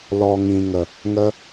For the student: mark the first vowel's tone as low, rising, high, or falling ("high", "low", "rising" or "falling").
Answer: low